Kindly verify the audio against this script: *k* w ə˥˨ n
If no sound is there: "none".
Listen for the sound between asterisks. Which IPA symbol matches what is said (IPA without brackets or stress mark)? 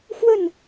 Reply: x